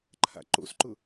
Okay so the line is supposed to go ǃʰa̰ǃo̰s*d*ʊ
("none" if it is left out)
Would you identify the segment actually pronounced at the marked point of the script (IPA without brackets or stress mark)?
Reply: ǃ